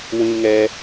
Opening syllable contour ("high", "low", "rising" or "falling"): high